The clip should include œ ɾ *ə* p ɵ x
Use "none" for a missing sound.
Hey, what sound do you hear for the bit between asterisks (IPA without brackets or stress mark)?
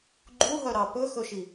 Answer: ɑ